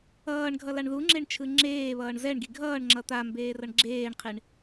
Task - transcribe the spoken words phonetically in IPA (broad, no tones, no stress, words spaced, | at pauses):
ʌːɳɡʱʌlaɳ ðuŋ͡ǁeɳt͡ʃʰɯ ŋ͡ǁeːβʌːɳ zɛɳɡi ɡʱʌːɳŋ͡ǁʌ t̪ambeːrʌɳ ɡ͡ǁeːɳqʰiɳ